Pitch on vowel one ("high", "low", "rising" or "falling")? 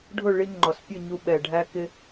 falling